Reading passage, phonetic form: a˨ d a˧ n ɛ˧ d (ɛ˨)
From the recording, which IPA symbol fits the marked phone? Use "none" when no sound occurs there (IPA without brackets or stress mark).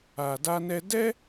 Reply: ɛ˦